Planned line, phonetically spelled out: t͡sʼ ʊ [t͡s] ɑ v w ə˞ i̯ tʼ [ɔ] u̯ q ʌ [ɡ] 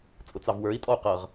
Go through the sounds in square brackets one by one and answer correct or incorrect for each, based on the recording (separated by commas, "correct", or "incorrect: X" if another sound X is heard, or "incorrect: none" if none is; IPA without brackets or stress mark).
correct, correct, incorrect: ʁ